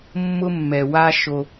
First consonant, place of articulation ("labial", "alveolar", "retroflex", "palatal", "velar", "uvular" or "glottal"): labial